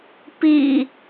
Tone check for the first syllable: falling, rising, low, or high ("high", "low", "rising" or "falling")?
low